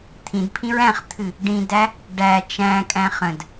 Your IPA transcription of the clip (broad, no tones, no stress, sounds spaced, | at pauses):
t̪ʰ ĩ d pʰ ĩ ɹ æ̃ χ t̪ʰ ɨ | ɖ ĩ d æ | ɖ æ t͡ʃ æ̃ kʼ æ̃ χ ə̃ d